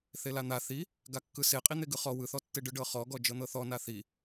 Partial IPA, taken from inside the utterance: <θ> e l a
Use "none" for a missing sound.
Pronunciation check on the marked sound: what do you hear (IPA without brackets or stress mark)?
θ